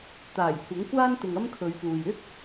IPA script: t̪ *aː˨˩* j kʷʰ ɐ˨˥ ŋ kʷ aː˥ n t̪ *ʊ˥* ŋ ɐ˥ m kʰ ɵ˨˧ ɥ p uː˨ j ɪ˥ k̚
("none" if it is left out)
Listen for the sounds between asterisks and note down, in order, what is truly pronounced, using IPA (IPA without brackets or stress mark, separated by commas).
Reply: aː˨˩, ʊ˨